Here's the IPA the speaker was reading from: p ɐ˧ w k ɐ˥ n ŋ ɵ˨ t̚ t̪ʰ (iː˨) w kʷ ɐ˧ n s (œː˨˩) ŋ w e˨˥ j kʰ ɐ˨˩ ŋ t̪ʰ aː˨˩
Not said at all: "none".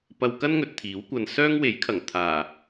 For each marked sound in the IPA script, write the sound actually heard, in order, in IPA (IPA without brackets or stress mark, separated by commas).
iː˨˥, œː˥